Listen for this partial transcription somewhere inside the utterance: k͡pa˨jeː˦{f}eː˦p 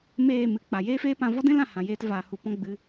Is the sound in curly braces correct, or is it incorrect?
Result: correct